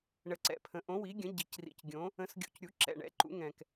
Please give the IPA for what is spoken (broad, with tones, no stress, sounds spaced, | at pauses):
ɳ ə˨˩ ǀ ɛ̰˨˩ pʰ ə̃˩˥ ʔ õ˩˥ w i˩˥ ɡʲ ə̃˩˥ ɟ i˨˩ c r ḭ˨˩ c ɡʲ õ˩˥ | ə̃˩˥ s ɡʲ ṵ˨˩ c ɾʲ u˩˥ ǁ ɛ̰˨˩ ɳ ɛ̰˩˥ ǃ ṵ˩˥ ŋ ɛ̃˨˩ k